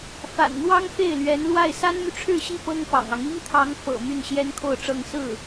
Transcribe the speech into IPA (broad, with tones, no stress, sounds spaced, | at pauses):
f a̰˨˩ n n̪ w ɑ˥ ŋ f e˥˩ ɪ̯ l ɥ ɛ˧˥ n l w a˥˩ ɪ̯ s a˥ n m y˨ ʈ͡ʂʰ ɻ̩˥˧ ɕ i˥˩ p ɤ˥ ŋ p ɑ̰˨˩ ŋ ɑ˦ ŋ i˥ ŋ t̪ʰ ɑ˧˥ ŋ f ɤ̰˨˩ m y˥˩ n ɕ j ɛ˥ n kʰ o˥˧ ʊ̯ ʈ͡ʂ ɤ˥˧ ŋ s ɹ̩˥˩